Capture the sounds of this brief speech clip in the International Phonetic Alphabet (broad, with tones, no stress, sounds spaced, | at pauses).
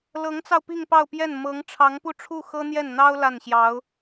l ɤ˧˥ ŋ t͡s ɑ˧ ʊ̯ p i˥˧ ŋ p ɑ˥˧ ʊ̯ p j ɛ˥˩ n m ɤ˧˥ ŋ ʈ͡ʂʰ ɑ˧˥ ŋ p u˥˧ ʈ͡ʂʰ u˥˩ x ɤ˥ n̪ j ɛ˥˩ n n̪ ɑ˥ ʊ̯ l a˥˩ n ɕ j ɑ˧˥ ʊ̯